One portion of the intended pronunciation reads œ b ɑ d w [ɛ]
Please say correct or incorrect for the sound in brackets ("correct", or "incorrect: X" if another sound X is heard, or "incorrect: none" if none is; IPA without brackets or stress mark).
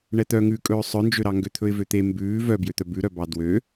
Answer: incorrect: ø